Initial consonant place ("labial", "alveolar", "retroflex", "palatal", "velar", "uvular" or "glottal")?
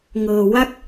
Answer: velar